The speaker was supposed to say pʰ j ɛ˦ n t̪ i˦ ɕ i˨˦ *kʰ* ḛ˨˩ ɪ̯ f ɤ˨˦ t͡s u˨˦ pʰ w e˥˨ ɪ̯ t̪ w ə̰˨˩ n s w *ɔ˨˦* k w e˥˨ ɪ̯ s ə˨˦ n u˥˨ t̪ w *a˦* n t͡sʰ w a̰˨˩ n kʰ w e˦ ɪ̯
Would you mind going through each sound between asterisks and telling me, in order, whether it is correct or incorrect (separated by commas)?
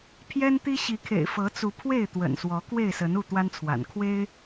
correct, correct, correct